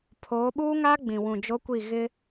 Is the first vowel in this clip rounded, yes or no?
yes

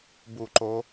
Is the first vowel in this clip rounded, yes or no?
yes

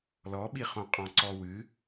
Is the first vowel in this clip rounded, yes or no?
yes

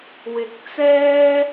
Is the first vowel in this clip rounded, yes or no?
no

